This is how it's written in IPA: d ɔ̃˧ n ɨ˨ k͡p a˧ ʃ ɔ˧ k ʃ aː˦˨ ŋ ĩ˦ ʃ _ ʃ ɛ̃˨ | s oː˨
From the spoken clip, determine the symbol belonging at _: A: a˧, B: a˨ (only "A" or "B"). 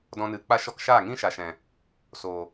B